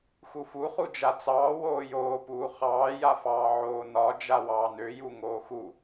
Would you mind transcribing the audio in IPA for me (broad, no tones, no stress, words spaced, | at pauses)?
xufuχu d͡ʒat͡sɑː woːjoːpuː χɑːjafɑː ʕoːnɒ d͡ʒawɑːnøju ŋoːxu